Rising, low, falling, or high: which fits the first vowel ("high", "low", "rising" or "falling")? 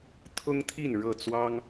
high